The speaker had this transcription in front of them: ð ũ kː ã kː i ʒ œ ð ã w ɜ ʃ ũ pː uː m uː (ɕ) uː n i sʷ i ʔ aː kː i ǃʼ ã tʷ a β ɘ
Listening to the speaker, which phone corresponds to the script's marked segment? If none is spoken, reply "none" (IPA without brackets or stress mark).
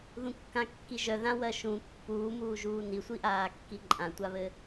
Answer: ʒ